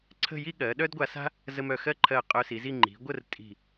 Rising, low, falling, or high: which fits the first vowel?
falling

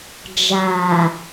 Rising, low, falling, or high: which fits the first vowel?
low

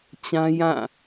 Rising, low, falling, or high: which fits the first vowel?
high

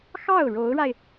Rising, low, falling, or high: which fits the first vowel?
falling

